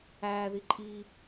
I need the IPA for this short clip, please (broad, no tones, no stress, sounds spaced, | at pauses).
æː ð i ǃʼ iː